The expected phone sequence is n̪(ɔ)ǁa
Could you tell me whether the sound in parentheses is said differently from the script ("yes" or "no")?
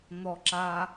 no